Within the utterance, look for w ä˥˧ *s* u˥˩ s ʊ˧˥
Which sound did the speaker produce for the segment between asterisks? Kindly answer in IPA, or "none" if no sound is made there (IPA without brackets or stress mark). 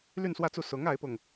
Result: t͡s